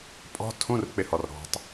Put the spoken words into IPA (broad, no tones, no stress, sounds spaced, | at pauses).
pʼ ɔ̤ tʰ ũ r k͡p ɪ h ɔ r ɾ ɔ̤ tˤ